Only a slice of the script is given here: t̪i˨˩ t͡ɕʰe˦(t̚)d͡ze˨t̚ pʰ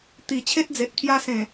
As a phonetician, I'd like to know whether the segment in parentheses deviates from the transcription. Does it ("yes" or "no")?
no